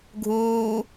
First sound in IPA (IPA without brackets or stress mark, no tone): ɡʱ